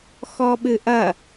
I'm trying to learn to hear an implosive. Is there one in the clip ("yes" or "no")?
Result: yes